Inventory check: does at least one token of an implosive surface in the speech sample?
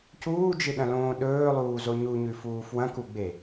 yes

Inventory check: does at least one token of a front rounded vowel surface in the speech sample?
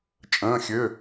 yes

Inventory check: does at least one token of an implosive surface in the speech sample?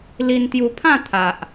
no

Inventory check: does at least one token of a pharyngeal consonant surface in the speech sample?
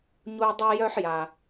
yes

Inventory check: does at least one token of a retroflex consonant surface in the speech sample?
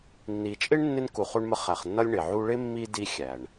yes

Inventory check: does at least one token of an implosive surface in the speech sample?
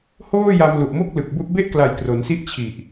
no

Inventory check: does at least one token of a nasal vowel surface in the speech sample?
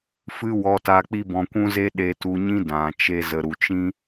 yes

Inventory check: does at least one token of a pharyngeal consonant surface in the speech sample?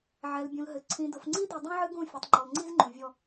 yes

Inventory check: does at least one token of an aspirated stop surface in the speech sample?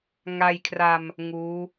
yes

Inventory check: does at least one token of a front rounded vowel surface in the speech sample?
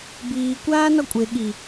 no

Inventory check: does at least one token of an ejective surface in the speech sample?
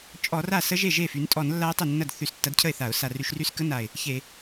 yes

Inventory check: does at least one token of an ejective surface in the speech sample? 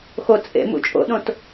yes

